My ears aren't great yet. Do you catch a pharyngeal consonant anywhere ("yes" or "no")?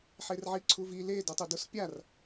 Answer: yes